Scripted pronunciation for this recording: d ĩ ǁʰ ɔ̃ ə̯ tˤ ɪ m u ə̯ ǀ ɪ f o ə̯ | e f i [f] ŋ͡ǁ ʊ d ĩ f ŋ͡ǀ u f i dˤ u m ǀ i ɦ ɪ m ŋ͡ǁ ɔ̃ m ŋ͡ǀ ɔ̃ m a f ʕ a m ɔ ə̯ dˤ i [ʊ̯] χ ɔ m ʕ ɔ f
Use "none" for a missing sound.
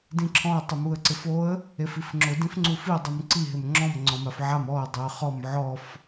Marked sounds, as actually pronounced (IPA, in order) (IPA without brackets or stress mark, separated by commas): f, ə̯